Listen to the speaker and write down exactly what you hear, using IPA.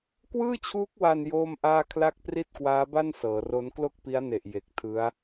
k w ɯː˥˩ t͡ɕʰ uː˦˥ k̚ w a˧ n j oː˥˩ m ʔ aː˥˩ kʰ l a˥˩ k̚ p r i˥˩ t̚ k w aː˦˥ b a˥˩ n s ɤː˩˦ r o˦˥ n k l o˥˩ k̚ p i˦˥ a̯ n e˨˩ ʔ j e˨˩ k̚ tʰ ɯ˦˥ a̯

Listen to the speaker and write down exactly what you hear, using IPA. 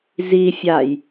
z i fʲ a j

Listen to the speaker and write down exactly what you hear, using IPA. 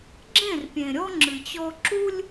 ɡ͡ǁ ẽ˦˨ r pʲ ẽ˨ ɾʲ ɔ˦ ŋ͡ǁ ɨ˨ t͡ɕ ɔ˦ ǁ u˦ lʲ

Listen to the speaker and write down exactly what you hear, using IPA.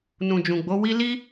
n ũ˨ d͡ʒ ũ˨ ɡ͡b o˨˦ w i˦ l i˦

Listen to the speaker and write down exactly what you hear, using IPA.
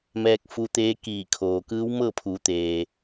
m ɛː˧ k̚ f u˧ t̪ eː˧˥ k iː˧˩ kʰ oː˩ k ɯː˧˥ w m ɤː˥˨ pʰ uː˩˧ t̪ eː˩

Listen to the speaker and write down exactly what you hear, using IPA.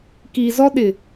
k iː˨ z ɔ˦ ɗ ɪ˨

